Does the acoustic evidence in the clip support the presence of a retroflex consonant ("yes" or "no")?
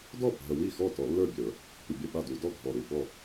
no